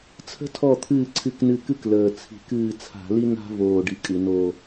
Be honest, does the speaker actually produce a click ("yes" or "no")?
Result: yes